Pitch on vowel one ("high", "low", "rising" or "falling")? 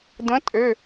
rising